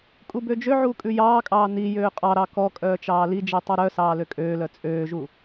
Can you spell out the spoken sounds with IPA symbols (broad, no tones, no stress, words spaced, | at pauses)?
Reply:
kʼubød͡ʒøʕuː kʼʉjɑːkʼɑː nijøː qʼɑɾɑ kɔ kʼœːt͡ʃɑːlid͡ʒi tˤuɾœsɑː løkʼøːlœ t͡sʼøːʒu